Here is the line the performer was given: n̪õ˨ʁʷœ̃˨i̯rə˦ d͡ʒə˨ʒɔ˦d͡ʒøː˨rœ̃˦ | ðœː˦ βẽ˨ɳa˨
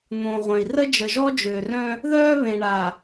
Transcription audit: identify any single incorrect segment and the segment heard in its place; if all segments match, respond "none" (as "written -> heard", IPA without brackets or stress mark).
none